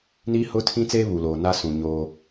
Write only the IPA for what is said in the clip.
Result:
niː˦hʊ˦tʰĩ˦t͡seː˦ βu˨loː˨ na˦sũ˨ ɲoː˦

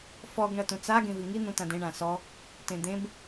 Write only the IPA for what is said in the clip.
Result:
fɔɡ ɳɐtũt͡sa ɡẽviŋi n̪ũtãdẽ ɳãsɔ | tẽd̪ẽb

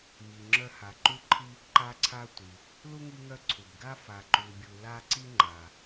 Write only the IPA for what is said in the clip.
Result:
mi˩ŋ͡ǁœ˦ ha˨ǃu˥ǃʰi˥ | ǃa˦ǀʰa˦tʷi˩ | lu˥ŋi˦ŋœ˦ ǀʰu˩bɡa˥ fa˨ ǃu˨bʲu˨ la˦ ǀi˦ŋ͡ǃa˩

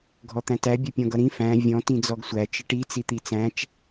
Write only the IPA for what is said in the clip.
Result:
ɡʱɔt̪æ̃tæ bʲʌpʲɔ̃ɡʌɾĩ fæ̃ vʲɔ̃ tĩd͡zɔɡsʷæ t͡ʃəʈi t͡sit̪it͡sæ̃t͡ʃ

